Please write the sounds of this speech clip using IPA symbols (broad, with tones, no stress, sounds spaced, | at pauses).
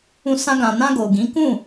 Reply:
ũ˧ s ã˧ ɡ ã˨ n ã˧ ɡ o˨ ɡ ĩ˨˦ k ũ˦˨